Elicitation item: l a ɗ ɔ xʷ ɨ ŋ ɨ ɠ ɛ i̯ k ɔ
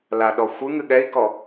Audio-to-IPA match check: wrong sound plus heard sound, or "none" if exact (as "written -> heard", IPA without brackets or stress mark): none